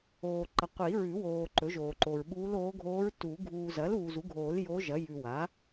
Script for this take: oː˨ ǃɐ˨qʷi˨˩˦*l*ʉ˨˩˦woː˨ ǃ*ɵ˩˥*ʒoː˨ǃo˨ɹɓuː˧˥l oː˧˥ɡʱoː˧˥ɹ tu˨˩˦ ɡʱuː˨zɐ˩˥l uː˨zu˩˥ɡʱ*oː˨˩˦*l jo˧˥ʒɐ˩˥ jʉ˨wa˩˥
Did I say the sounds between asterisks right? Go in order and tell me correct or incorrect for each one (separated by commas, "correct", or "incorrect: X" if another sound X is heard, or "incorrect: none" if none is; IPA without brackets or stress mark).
incorrect: ɹ, correct, correct